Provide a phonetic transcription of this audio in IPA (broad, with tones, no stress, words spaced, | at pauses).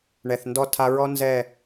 ɳɛ˨θndɔ˦ tʰa˧ɹɔ˦ nzɛ˦˨